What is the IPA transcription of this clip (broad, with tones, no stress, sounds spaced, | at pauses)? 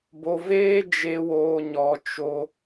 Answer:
b o˧ v eː˦ d͡ʒ e˧ w oː˧ ɲ ɔ˧ t͡ʃ o˦